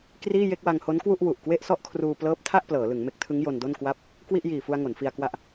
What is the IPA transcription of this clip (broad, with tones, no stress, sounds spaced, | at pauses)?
k r iː˥˩ j e˥˩ k̚ w a˧ ŋ h o˦˥ n k w u˥˩ ʔ w u˨˩ ʔ k w e˥˩ ʔ s ɔ˥˩ ʔ kʰ r uː˧ p l ɤː˦˥ p̚ tʰ a˥˩ ʔ p l ɤː˩˦ l ɯ˩˦ ŋ m e˦˥ k̚ tʰ ɯ˦˥ ŋ j o˧ n d o˥˩ n k w a˦˥ p̚ | k w i˥˩ ʔ j iː˨˩ f u˧ a̯ ŋ o˩˦ n f i˧ a̯ k w a˦˥ ʔ